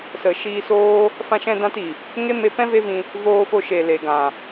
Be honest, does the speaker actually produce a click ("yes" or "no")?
no